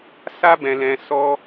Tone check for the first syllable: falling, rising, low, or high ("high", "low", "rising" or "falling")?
high